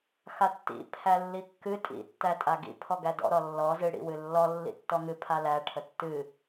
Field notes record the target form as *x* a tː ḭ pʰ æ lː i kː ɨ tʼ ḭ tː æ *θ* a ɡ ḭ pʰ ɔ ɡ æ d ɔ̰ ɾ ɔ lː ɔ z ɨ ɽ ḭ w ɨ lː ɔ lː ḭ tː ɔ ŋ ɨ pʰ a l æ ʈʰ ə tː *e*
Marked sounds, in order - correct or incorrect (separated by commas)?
correct, incorrect, incorrect